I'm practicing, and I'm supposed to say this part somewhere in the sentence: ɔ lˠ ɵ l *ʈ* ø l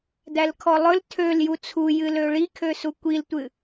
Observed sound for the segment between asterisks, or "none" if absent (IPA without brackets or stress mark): tʰ